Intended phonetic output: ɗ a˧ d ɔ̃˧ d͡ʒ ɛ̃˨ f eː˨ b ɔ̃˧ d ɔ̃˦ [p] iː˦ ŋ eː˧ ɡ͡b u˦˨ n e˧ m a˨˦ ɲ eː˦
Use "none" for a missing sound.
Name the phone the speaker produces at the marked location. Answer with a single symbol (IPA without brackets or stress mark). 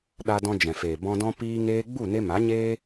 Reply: p